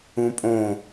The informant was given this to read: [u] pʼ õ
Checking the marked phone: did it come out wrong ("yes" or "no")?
yes